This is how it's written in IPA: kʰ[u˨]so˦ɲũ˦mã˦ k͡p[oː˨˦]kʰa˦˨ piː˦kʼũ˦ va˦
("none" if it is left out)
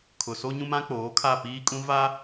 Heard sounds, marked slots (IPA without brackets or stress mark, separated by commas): ʊ˨, oː˨˦